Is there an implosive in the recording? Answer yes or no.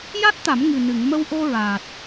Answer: no